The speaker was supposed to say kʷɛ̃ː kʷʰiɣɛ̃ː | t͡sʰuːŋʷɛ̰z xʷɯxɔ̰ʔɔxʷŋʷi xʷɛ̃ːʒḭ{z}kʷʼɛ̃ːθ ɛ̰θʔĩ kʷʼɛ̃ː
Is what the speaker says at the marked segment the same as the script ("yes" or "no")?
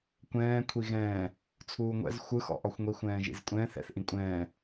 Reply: yes